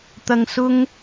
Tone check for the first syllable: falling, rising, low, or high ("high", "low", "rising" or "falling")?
low